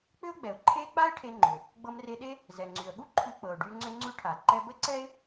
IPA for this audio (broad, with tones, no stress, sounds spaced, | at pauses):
k͡p ʏ˥ ʊ̯ ɡ͡b ɛ˩ ʊ̯ ǃʰ e˥ k͡p a˥ ɪ̯ ʈʰ e˧ ŋ͡ǃ ʏ˩ | ɡ͡b ɤ˧ m r e˧ ɗ e˥ | z ɛ˩ ŋ͡ǀ y˩ ə̯ ɠ u˥ ǃʰ ʉ˧ k͡p ɤ˩ ʊ̯ ɖ y˧ ŋ͡ǀ ʏ˧ ŋ͡ǀ ʉ˧ ʈʰ a˩ ǃ ɛ˧ b ə˥ ǀ ɛ˥ ɪ̯